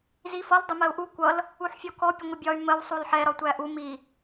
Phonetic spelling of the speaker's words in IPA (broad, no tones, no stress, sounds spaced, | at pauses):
z i f ʌ l dˤ ʊ m ɜ u̯ ʔ u kʷ ʌ l | u ħ fʲ ɔ k ɔ pʲ ə ŋʷ ɪ bʲ ɒ y̯ m ə w sˤ u l ħ ɛ ɾ ɒ tʷ æ ʔ u m i